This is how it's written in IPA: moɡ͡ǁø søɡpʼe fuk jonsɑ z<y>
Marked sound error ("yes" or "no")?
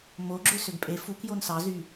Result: no